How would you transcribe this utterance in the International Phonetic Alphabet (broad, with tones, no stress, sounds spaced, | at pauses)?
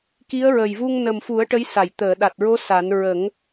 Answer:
k i˧˥ ə̯ ɹ ə˨˩ j v u˧ ŋ n ə˨˩ m f u˨˩˦ ə̯ ʈ ə˧˥ j s a˨˩˨ j t̪ əː˨˩˨ ɗ a˨˩ t̚ ɹ o˧˥ s a˨˩˦ n ɹ ə˨˩˦ ŋ